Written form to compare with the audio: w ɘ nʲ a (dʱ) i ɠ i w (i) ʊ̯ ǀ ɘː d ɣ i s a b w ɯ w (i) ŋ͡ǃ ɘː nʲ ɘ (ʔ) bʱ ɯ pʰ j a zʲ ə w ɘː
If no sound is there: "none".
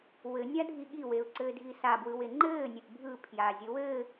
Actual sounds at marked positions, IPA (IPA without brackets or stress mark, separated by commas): dʱ, e, e, ʔ